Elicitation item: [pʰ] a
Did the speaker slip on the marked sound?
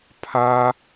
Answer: no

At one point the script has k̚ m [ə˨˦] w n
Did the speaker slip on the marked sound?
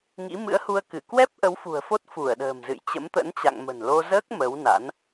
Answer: no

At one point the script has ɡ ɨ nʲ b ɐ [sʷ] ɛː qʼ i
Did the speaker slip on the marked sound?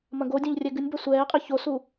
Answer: no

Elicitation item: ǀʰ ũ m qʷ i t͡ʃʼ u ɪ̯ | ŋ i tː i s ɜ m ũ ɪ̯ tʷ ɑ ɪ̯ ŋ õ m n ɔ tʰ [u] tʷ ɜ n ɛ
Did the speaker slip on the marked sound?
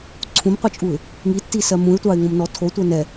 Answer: yes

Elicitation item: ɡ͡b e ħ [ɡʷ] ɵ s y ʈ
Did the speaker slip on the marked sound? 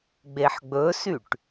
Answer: yes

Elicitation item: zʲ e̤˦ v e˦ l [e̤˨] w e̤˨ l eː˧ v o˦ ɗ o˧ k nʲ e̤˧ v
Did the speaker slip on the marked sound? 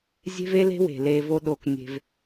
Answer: yes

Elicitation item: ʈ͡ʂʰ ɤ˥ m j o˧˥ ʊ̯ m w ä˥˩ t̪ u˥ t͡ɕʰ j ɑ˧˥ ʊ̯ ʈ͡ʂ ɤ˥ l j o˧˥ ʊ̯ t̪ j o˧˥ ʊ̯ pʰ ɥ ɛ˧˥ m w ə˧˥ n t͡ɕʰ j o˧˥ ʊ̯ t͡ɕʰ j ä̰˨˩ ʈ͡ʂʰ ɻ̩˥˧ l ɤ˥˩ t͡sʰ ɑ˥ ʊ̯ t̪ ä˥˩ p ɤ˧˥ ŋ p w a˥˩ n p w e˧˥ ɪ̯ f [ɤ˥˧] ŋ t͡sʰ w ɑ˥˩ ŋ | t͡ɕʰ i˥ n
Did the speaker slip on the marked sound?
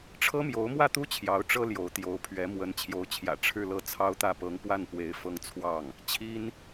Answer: no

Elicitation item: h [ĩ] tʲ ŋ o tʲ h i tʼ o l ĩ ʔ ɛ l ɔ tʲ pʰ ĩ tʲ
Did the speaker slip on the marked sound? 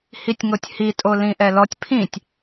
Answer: yes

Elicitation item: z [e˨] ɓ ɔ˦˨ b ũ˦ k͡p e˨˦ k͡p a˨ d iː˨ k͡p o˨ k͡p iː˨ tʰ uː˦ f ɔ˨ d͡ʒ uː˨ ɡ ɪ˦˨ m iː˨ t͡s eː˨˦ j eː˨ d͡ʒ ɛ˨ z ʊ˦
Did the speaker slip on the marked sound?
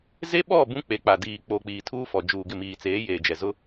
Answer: yes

